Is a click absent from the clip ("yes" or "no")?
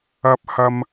yes